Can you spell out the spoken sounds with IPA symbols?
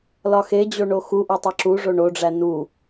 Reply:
lɒxed͡ʑo ɳoxuʔo tˤeǁuʐo ɳoɖ͡ʐæ nu

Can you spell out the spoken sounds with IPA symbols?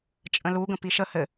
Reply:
t͡ʃʼə̃luɡə̃ piʃə hɘ

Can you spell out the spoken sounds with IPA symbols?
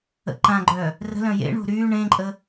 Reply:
ə̰ǃãɡ͡ǃœ | rə̤lœ̃ jḛɳo̤ ɾyː ɳẽǃʼə

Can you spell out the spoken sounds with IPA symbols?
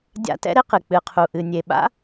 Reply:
dʲa̰˦tɛ̰˥ɾe˥qɨ˩ k͡pɨ˨qʰu˨ʔɨ˨ nʲe˨ɓa̰˥

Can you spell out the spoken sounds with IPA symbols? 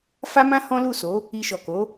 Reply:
fa˦mã˦ hɔ̃˦lu˦˨so˨˦ | i˧ʃɔ˨ko˨˦

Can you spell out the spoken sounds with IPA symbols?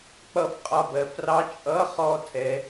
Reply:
k͡pʌ˧fqʼɒ˧bɜ˩˧frɑ˧˥ t͡ʃʼʌ˧˥χɔ˧ tʰɛ˩˧

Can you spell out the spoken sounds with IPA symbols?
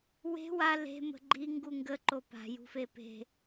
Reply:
we̤ wa le̤mə̤ ɡ͡ǃi ŋɡuŋɡə ǃopa̤ jṳfepe̤

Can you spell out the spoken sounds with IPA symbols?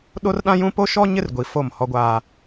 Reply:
ɗo˦rɗã˦ jũ˦ po˦ʃɔ˦ ɲɪ˦rɡʷi˨ fo˦˨mhɔ˦ɡʷaː˦

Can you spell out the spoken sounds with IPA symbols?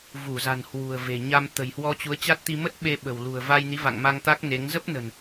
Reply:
vu˧˩za̤˨˩n hwṳ˨˩ə̯ve̤˨˩ɲa˧m t̪ə̤˨˩jhwɔ˧ t͡ɕu˨˦ə̯t͡ɕa˦˥t̚t̪i˧ mə˦˥t̚ ɓe˧ɓə̤˨˩w lṳ˨˩ə̯va˧jni˨˦ va̰˧˨ŋma˧ŋt̪a˦˥k̚ ne˨˦ŋ zə˦˥p̚nə̤˨˩n

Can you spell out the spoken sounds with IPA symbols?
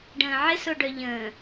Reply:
ɖə̃ːʕɪ soɖœʎə̃ː

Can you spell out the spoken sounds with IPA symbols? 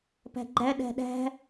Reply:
pæ̤ɡ͡ǃæ ɗæ̤ɗæ̤

